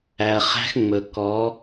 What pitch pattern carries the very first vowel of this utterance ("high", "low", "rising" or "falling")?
low